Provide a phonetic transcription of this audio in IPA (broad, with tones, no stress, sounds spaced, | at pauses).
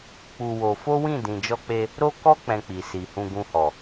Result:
k͡p u˧ w o˧ f o˦ w ĩ˦˨ d ĩ˨ d͡ʒ ɔ˧ k͡p e˧ | ɾ o˦ k ɔ˦ k͡p ɛ̃˧ k͡p i˨ s i˨ h ũ˧ ɡ ũ˧ h ɔ˨